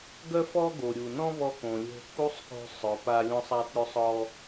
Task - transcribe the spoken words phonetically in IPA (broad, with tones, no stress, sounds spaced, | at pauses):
ɡ œ˥ f ɔ˥ ɡ o˩ ɾʲ u˩ n ɔ̃˥ β ɔ˧ k õ˩ lʲ o̤˧ k u˥ sˤ k o̤˧ sˤ œ˩ p a˧ lʲ ɔ̃˧ sˤ a˧ t ɾʲ o˧ sˤ ɔ˧